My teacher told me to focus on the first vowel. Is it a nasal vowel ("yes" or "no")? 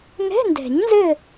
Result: no